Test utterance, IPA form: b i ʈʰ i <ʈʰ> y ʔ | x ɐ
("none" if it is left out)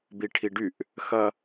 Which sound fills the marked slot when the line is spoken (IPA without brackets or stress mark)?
ɖ